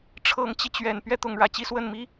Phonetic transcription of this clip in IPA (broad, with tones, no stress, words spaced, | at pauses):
ʈ͡ʂʰɤ˧˥ŋt͡ɕi˧t͡ɕɥɛ˨˩n pɥɛ˥t̪ʊ˧˥ŋɻä˨˩t͡ɕi˥ swə˥˩nmi˥